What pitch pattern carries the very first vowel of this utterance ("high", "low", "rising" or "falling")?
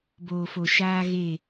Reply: low